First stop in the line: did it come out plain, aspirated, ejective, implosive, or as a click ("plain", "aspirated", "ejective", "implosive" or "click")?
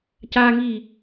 plain